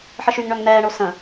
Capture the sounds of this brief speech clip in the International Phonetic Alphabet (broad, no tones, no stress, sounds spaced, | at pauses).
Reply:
ħ ə ʃ y ŋ ɳ œ ŋ n̪ ɛː ɳ o s ə̃